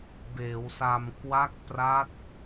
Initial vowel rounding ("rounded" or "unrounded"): unrounded